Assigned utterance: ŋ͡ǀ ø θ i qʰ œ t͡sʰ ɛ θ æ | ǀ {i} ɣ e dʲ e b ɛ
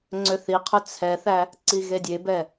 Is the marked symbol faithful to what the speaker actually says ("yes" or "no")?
yes